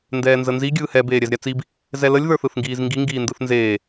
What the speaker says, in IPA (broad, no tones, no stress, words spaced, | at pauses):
ndɛːnzənzi ɡʲɯːhɛ beːɾʲɛzɾʲat͡sib | zɛləlʲ ðə˞θɯθŋɡiːzŋɡi ŋɡiːndɯθnzeː